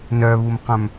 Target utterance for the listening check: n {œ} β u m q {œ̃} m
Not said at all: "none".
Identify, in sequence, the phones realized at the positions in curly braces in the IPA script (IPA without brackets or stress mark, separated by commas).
œ, œ̃